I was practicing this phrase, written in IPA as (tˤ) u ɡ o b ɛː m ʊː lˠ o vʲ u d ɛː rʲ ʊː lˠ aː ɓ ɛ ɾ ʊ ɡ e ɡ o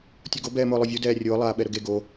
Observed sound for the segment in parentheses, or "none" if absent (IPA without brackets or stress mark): tʲ